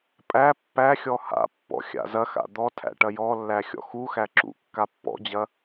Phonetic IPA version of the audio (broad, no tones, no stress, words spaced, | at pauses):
pʼæ pːæxʲɔ ha̰pːɔ̰ xʲa̰zɐxa̰ d̪ɔtʰæ̰ ʈɐjɔlːæ xʲɔ̰xuxæ ǁṵ kːapːɔ̰d͡ʑɐ